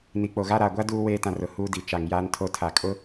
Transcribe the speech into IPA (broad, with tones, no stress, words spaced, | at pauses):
ni˨k͡po˨ɣa˦ ɾaː˨ɡʷa˦ duː˦ weː˦tã˨rʊ˨ huː˦di˨t͡ʃa˨ŋjaː˦n tʰo˦tʰa˨ kʼʊ˦